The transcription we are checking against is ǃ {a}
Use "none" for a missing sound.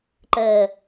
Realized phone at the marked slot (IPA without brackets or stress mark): ə